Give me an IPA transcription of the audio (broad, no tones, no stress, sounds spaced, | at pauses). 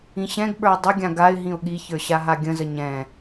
ĩ ɕ ɛ̃ ɡ ɓ ə˞ ɪ̯ dˤ ə ɡʲ ã ɡ a ɪ̯ ɦ ĩ ʊ̯ ɠ i ç ə˞ ɕ a ɦ a ɡʲ ə̃ z ə ɲ ɛ̃